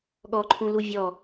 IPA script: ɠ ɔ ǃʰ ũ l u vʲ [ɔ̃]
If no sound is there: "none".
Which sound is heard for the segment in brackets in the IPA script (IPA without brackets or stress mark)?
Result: ɔ